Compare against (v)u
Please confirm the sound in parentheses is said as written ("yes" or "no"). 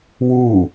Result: no